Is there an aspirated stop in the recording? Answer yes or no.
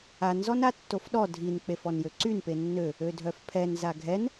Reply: yes